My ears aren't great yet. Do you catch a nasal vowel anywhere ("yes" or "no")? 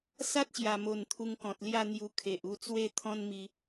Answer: yes